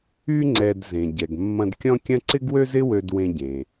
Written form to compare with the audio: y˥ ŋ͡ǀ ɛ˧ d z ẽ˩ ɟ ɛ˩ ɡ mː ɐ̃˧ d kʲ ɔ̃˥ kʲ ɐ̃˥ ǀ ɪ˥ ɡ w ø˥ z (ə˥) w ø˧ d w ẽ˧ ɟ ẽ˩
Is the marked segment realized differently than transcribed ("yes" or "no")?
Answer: yes